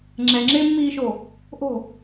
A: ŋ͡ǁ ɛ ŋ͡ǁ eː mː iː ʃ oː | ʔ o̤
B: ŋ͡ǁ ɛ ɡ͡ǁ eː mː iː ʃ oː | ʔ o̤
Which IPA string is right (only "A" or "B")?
A